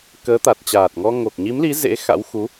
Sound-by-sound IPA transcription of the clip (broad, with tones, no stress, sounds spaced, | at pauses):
k əː˨˦ t̪ a˨˩ t̚ t͡ɕ aː˨˩ t̚ ŋ ɔ˧ ŋ o˨˩ k̚ ɲ i˨˦ m l i˨˦ z ḛ˧˥ x a̰˧˥ w x u˨˦